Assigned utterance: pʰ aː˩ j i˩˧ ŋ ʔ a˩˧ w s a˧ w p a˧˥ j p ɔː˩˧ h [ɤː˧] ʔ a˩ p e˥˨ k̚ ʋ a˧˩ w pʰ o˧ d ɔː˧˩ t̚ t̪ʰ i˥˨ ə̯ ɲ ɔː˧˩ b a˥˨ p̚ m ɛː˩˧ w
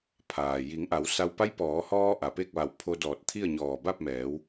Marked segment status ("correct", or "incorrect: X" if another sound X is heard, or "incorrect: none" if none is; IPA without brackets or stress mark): incorrect: ɔː˧